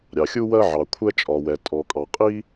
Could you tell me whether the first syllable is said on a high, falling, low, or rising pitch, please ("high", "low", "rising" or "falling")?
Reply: low